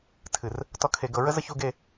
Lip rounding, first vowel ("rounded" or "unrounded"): unrounded